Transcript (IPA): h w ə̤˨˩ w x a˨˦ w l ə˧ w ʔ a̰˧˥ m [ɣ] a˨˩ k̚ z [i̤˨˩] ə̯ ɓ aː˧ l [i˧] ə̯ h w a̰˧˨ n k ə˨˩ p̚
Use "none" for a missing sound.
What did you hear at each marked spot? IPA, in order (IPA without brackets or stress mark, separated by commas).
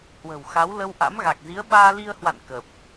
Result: ɣ, i˨˦, i˧